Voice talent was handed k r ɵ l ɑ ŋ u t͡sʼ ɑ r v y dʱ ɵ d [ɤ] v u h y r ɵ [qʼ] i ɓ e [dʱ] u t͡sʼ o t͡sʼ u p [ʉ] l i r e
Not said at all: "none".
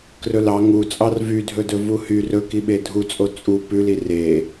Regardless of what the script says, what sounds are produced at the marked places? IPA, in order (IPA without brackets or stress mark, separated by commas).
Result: ɵ, k, dʱ, ʉ